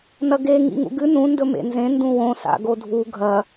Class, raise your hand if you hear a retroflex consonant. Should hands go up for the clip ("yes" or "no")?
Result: no